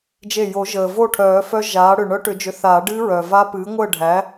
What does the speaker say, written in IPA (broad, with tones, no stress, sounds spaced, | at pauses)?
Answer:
d͡ʒ e˧˩ j o˨˩˦ ʒ əː˩ v o˥˨ ʈʰ œː˨˩˦ f œ˦˥ ʒ aː˩˥ ɽ ʏ˧˩ ɳ œ˦˥ ʈ ʏ˨˩˦ d͡ʒ ʏ˩˥ θ aː˨˩˦ ɖ ɨː˦˥ ɹ œː˩ v a˦˥ p ɨː˩˥ ŋʷ əː˥˨ ɖʱ æ˩˥